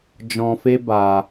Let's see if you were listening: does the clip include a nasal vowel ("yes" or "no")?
yes